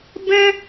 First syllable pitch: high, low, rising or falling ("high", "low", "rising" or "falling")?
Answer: high